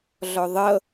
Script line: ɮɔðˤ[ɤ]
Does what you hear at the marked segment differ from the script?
no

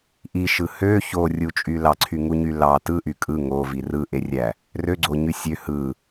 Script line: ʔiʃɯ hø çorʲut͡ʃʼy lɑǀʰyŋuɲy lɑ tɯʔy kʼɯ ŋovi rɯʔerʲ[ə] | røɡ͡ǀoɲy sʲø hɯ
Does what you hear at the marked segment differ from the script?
yes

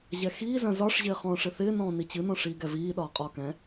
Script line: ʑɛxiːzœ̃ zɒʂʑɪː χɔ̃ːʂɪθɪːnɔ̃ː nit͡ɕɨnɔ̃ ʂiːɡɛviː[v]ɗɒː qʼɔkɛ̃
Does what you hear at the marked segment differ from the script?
yes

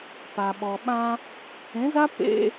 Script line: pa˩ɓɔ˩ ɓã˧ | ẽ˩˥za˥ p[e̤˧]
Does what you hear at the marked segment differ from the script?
yes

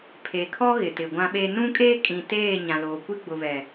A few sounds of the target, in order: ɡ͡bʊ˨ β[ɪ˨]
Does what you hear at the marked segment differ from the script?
yes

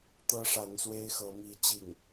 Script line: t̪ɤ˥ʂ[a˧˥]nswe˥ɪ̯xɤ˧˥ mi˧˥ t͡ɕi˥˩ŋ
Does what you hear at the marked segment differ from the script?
no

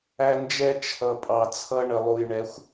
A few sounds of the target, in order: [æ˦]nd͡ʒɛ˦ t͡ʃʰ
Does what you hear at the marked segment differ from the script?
no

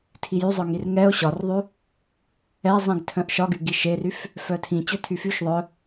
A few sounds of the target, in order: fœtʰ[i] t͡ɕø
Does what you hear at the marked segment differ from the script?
yes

